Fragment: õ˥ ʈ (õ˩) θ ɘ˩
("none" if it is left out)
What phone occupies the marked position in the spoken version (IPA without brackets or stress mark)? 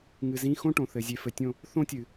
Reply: õ˨